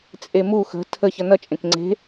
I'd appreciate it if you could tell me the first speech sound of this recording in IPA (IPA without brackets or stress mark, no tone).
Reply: t͡sʼ